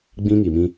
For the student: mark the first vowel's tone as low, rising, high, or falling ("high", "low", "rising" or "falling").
high